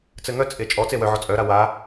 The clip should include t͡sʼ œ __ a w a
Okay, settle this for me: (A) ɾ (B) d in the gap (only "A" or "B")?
A